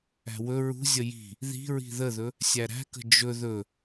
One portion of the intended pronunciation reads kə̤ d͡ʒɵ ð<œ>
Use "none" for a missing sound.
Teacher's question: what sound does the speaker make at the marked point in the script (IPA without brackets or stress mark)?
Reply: ɵ